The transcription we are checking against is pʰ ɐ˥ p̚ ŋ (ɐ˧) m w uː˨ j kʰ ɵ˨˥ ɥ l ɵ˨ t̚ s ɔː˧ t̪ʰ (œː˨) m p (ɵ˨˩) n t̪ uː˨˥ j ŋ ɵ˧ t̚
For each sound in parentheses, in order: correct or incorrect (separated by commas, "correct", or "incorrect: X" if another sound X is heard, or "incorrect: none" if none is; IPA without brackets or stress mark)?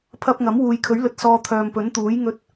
incorrect: ɐ˨˥, correct, incorrect: ɵ˨˥